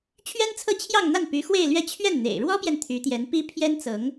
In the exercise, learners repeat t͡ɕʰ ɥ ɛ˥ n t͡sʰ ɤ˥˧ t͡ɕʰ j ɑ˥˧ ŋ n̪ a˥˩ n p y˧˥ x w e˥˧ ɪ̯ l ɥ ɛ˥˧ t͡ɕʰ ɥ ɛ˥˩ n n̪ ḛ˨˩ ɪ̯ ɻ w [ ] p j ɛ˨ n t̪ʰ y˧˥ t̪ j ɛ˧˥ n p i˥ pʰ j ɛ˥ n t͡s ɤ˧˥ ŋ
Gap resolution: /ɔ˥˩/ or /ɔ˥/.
ɔ˥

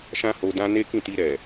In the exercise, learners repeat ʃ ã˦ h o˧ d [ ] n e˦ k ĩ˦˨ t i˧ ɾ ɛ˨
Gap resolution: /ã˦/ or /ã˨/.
ã˦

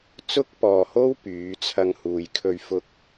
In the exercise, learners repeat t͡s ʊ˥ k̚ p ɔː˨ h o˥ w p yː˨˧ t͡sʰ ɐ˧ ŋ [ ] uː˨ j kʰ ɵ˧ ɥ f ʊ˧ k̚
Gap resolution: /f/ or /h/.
h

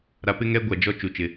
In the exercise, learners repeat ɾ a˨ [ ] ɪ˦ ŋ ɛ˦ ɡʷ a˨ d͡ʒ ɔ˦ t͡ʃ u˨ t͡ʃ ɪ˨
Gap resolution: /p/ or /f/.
p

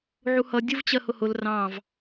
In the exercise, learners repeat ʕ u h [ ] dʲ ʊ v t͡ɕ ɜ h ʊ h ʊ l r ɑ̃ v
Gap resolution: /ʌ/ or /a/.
ʌ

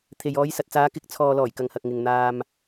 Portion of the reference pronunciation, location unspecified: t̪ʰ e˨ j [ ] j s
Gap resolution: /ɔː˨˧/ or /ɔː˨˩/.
ɔː˨˧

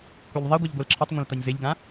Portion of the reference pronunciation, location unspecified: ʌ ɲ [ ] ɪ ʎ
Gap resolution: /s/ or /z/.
z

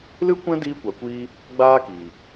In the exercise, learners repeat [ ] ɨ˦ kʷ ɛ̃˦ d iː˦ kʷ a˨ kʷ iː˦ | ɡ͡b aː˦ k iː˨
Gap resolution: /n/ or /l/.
l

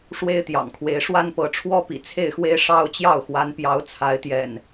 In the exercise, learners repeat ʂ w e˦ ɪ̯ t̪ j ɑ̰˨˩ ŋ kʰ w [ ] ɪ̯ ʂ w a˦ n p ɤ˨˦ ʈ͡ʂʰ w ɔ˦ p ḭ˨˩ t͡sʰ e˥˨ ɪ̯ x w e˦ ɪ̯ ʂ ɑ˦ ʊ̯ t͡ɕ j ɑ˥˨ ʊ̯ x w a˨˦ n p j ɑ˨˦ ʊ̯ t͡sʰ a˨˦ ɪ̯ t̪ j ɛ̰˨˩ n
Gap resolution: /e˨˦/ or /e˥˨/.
e˨˦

